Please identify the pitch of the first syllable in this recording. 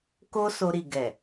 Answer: high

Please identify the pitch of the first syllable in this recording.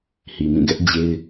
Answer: low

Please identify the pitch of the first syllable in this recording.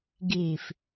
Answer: low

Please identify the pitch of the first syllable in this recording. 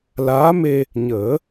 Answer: rising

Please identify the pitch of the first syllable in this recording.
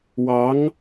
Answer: rising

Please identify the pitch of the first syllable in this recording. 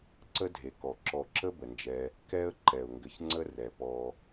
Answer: high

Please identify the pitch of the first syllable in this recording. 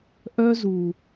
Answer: high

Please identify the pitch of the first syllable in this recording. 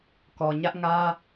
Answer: low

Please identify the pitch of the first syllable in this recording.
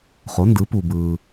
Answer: rising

